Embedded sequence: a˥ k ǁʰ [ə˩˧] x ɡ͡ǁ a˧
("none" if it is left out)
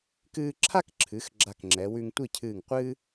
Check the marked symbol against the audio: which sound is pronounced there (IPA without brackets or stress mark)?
ɨ˩˧